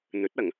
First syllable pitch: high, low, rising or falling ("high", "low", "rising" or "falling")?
rising